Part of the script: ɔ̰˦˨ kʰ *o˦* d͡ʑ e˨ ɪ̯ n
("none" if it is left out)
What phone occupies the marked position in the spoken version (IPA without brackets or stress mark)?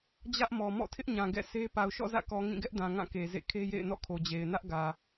o˨